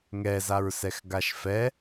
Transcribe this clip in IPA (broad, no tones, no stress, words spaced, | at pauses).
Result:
ŋɛzaɹsɛx ɡaʃfɛ